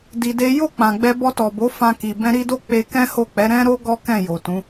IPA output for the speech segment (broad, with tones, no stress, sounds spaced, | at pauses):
d i˧ d e˦ j o˦˨ k͡p ã˨ ɡ͡b ɛ˧ b ɔ˧ t ɔ˨ b o˨˦ f ã˧ k i˨ b ɛ̃˧ ɾ i˧ d o˦ k͡p e˧ k ɛ̃˦ h o˦˨ k͡p ɛ˨˦ ɾ ɛ̃˦ ɾ o˦ ɡ ɔ˦ k ɛ̃˦˨ j o˨ t ũ˨˦